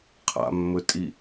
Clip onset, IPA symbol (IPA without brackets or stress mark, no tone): qʰ